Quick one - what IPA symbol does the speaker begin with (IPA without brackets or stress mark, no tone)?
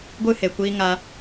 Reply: ɡʷ